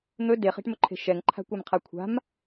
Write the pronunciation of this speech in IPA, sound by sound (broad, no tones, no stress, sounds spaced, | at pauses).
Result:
n̪ ɵ d e χ e̤ ʈ m ɵ ǃʰ e̤ ʃ ɛ ŋ ǃʰ a̤ kʷ a m qʰ a kʷʰ a̤ m